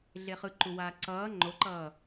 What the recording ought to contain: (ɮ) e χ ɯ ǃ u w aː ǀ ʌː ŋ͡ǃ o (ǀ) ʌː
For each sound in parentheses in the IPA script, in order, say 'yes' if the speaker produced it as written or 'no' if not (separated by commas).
yes, no